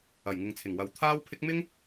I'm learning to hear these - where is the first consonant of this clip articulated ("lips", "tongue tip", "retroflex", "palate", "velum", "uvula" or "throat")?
palate